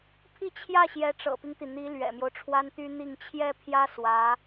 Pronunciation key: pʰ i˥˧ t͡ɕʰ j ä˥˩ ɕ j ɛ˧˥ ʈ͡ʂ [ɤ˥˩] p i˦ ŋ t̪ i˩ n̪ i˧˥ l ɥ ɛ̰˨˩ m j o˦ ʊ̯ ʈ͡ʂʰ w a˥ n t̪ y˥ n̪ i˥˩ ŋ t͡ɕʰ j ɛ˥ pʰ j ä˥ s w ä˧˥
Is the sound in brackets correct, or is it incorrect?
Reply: incorrect